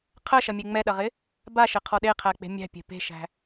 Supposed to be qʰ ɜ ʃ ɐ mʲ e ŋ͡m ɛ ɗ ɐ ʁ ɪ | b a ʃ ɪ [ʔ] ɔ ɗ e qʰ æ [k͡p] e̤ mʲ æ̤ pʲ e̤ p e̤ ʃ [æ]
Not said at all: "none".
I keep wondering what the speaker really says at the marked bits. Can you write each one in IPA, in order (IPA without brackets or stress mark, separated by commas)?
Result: qʰ, k͡p, æ̤